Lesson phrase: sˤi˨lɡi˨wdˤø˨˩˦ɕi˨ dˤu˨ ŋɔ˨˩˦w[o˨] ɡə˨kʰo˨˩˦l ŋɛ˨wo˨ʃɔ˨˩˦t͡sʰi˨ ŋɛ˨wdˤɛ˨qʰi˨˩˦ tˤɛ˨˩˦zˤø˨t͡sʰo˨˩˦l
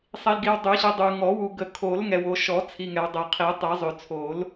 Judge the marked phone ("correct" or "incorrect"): incorrect